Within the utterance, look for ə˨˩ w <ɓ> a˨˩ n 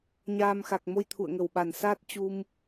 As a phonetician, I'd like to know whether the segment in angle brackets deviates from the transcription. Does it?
no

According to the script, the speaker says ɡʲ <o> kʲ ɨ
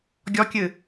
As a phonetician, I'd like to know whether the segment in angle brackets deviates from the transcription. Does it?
yes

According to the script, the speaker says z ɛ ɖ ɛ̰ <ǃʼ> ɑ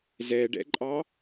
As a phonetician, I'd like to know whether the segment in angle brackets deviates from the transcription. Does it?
no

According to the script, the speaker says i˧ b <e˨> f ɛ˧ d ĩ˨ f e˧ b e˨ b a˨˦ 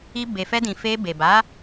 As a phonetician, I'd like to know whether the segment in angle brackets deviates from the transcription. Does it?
no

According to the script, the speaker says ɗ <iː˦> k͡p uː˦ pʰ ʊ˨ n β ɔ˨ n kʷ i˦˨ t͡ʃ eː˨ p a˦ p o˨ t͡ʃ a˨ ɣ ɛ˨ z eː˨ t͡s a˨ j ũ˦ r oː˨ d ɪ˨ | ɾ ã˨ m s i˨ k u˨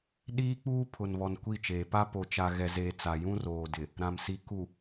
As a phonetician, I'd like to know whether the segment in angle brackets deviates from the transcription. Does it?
no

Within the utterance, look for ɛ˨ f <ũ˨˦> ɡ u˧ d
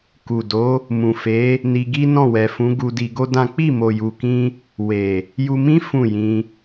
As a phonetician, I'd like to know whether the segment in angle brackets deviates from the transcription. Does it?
no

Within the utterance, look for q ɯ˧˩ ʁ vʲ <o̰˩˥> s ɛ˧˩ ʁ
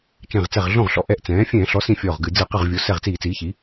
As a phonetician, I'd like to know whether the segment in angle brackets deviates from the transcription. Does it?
yes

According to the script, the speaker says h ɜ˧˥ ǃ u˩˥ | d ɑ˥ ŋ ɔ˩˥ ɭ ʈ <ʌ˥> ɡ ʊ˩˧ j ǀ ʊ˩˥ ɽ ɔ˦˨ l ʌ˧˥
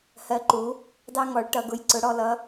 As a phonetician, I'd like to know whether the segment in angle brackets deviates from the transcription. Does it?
yes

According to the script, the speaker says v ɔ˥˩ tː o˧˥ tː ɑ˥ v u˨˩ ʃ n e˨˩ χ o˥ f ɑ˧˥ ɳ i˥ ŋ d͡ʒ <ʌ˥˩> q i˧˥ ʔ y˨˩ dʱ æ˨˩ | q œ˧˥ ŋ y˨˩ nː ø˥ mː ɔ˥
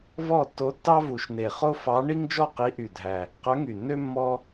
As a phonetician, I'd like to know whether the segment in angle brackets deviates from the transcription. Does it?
yes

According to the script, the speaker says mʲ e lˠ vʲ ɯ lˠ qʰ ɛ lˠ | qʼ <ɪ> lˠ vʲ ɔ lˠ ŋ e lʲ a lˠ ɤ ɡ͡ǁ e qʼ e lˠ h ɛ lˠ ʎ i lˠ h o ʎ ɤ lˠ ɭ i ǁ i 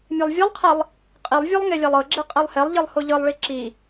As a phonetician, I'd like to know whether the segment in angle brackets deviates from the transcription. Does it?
yes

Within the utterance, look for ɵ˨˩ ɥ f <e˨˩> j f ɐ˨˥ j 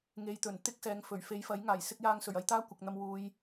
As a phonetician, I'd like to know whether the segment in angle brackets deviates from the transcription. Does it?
yes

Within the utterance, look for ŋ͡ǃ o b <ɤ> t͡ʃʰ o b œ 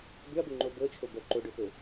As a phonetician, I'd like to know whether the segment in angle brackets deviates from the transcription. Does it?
no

